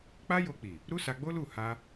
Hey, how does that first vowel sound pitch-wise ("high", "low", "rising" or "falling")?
high